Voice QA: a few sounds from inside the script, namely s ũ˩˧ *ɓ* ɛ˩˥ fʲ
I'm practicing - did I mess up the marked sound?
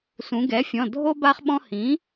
yes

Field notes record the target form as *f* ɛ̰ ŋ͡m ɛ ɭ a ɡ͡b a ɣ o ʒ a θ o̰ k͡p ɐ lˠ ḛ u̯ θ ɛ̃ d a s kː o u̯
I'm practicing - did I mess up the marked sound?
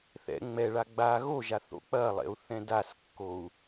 yes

